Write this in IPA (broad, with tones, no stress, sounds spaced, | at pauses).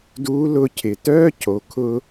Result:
d uː˧˥ l ʊː˧ cʰ ɪ˩ t œː˥ cʰ o˩˧ kʰ ʊː˥